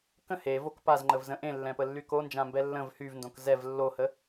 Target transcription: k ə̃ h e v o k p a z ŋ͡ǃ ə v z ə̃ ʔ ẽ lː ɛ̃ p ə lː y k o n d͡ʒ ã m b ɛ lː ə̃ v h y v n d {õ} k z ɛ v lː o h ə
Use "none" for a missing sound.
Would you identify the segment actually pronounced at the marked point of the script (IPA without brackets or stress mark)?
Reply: õ